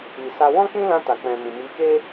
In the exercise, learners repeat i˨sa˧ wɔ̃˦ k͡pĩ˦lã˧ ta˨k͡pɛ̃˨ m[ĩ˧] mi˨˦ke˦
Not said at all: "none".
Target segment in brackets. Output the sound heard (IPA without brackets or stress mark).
ĩ˨